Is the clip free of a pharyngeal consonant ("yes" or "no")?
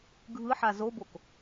no